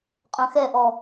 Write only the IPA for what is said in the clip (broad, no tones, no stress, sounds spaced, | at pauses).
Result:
qʼ œ̃ x ɛ ʔ ɔ